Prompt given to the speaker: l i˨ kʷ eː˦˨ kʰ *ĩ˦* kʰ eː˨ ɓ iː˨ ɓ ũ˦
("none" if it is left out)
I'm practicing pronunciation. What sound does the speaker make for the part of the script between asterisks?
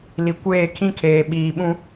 ĩ˦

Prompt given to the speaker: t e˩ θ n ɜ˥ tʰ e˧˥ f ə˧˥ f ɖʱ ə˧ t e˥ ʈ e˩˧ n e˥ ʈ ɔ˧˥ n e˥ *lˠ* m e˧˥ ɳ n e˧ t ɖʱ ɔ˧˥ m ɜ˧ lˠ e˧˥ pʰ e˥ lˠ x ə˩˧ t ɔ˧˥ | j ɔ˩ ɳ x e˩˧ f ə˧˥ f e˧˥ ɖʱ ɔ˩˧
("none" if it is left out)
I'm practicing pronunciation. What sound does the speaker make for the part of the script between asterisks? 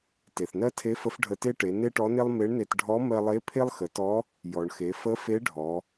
lˠ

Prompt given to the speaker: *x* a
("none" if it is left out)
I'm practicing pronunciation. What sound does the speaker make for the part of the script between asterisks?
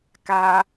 k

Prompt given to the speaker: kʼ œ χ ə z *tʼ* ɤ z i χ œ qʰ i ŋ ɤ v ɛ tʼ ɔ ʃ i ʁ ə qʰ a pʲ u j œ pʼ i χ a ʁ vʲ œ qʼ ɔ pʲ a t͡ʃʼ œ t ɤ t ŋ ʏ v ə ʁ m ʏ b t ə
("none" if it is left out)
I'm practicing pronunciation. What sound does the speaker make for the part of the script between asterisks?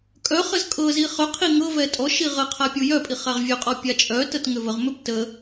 kʼ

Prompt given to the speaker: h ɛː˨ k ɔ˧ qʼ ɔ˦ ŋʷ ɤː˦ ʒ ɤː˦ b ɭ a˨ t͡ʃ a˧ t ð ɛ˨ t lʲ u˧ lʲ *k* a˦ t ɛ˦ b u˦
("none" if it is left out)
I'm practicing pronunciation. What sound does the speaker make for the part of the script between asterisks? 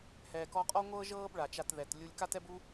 k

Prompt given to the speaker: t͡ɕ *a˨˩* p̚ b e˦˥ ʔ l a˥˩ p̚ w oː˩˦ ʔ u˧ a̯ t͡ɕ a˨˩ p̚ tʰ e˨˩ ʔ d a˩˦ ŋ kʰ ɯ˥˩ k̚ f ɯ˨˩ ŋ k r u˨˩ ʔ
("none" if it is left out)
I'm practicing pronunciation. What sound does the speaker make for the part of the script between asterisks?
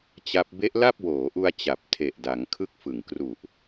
a˦˥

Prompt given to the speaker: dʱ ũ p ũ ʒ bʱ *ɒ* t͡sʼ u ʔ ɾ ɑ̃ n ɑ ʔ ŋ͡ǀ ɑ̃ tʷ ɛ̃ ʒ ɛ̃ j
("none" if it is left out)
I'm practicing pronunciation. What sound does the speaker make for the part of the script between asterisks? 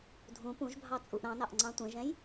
ɑ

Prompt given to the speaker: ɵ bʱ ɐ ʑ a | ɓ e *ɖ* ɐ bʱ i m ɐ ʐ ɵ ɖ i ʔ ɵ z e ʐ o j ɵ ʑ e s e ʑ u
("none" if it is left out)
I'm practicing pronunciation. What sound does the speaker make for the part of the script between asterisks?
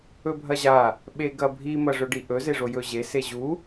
ɡ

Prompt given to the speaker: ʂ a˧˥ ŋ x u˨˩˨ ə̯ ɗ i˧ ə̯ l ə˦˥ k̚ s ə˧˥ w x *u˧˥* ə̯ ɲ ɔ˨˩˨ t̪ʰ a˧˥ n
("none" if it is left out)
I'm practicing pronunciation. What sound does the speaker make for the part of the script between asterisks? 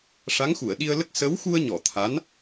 u˧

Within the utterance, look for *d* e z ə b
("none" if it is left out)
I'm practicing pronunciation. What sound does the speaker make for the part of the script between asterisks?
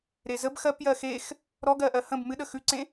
ɾ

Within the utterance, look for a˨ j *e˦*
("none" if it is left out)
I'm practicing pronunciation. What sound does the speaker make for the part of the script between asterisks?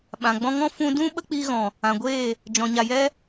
ɛ˦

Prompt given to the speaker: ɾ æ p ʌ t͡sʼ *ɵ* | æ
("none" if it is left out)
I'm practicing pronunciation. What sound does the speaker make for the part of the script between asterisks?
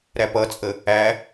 ə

